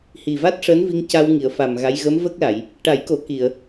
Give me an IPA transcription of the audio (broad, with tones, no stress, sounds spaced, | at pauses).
h i˨˩ v a˦˥ t̚ ʂ əː˧˥ n v i˧ ŋ c a˧ w ŋ i˨˩˨ ə̯ f a˨˩ m ɣ a˧˥ j ɣ ə˧˥ m v ə˦˥ k̚ l a˨˩˨ j | ʈ a˨˩˦ j k o˨˩˦ k i˨˩˨ ə̯